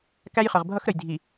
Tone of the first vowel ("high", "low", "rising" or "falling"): high